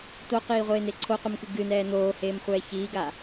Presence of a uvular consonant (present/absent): present